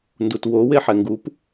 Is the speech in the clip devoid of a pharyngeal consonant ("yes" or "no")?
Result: no